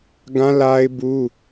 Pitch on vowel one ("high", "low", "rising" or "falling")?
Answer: high